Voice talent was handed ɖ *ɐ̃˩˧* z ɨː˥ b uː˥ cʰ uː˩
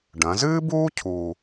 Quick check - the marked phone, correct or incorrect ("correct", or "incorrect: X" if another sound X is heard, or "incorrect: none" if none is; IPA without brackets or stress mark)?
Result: correct